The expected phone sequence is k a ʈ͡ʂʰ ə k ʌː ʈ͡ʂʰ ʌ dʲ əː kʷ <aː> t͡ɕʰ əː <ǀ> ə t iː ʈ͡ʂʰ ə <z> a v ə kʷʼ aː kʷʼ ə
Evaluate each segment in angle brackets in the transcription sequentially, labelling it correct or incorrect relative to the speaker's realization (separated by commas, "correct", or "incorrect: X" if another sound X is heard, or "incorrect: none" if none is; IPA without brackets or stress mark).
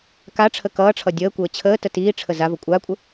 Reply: incorrect: əː, incorrect: t, correct